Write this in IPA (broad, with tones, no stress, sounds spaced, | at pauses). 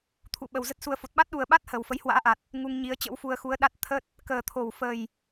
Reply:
t̪ʰ ṵ˧˨ ɓ ə˨˩ w z ə˦˥ t̚ s u˧ ə̯ f o˨˩ t̚ ɓ a˦˥ t̚ ɗ u˨˩ ə̯ ɓ a˦˥ t̚ h əː˨˩ w f ə˨˦ j h w a̰ː˧˥ ʔ a˨˩ t̚ | ŋ u˧ ŋ ɲ i˨˦ ə̯ t͡ɕ ə̰˧˥ w f u˧ ə̯ x u˨˦ ə̯ ɗ a˦˥ t̚ t̪ʰ ə˦˥ t̚ | k əː˨˩ t̪ʰ o˨˩ w f ə˨˩ j